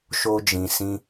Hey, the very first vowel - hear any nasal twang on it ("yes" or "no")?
no